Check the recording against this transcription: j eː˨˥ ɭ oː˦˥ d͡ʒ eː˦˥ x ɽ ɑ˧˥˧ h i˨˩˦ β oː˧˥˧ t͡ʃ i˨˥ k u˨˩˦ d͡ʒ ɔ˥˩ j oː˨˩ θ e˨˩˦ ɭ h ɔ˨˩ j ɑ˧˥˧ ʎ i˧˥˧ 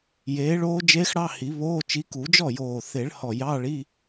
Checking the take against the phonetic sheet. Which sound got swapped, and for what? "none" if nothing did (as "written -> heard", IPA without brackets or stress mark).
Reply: ʎ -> ɭ